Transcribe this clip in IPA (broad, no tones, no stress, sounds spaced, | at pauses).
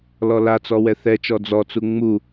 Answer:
l ɔ l a t͡s ɔ w ɛ θ ɛ t͡ʃ ɔ d͡z ɔ t͡s u ŋ͡m u